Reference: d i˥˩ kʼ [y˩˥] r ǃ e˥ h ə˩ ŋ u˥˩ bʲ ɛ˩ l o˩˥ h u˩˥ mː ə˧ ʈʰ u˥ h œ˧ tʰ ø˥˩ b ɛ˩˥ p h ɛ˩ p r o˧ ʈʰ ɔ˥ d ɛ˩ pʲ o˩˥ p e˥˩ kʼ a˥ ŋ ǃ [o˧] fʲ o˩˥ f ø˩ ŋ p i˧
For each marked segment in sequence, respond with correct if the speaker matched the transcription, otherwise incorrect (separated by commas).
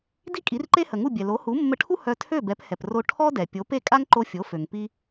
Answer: incorrect, correct